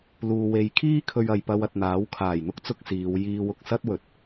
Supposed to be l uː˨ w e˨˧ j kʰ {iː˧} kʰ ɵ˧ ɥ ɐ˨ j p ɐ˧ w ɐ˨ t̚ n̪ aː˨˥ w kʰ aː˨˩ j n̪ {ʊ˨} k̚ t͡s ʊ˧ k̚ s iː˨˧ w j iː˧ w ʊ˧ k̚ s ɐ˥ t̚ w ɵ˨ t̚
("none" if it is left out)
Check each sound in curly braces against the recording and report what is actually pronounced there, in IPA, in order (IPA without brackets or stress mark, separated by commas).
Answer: iː˥, ʊ˥